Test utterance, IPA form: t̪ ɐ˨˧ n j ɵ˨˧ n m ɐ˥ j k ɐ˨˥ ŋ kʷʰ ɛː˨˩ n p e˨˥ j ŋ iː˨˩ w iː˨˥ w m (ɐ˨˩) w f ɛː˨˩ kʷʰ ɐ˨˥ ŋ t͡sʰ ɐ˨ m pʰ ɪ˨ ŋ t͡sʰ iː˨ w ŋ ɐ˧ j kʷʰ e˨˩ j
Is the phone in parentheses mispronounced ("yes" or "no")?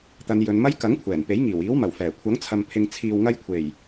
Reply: no